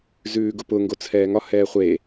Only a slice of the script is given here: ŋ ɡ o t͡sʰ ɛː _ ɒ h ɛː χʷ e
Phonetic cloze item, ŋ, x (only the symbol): ŋ